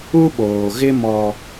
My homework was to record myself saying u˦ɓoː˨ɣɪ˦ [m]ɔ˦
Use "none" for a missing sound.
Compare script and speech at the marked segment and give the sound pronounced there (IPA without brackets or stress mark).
m